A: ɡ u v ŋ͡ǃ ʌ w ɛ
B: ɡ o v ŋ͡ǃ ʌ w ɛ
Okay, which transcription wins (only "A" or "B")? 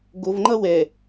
B